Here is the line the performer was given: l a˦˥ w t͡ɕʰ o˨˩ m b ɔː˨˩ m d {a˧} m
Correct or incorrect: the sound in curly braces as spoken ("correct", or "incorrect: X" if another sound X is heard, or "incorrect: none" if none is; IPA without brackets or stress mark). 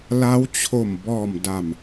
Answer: incorrect: a˨˩